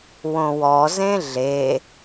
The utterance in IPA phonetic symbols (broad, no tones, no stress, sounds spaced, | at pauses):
w õ w ɔ z ẽ ɮ e